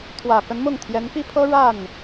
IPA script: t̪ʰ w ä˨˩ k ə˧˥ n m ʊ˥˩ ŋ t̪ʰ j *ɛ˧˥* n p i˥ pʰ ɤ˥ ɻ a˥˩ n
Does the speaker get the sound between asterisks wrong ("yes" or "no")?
no